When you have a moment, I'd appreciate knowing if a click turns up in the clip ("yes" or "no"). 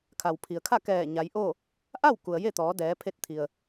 no